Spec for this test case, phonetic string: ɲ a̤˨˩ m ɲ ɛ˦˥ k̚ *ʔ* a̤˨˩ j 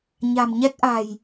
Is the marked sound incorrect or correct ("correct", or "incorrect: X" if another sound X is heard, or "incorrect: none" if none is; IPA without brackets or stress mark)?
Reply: correct